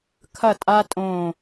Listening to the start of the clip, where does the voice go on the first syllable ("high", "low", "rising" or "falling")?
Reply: falling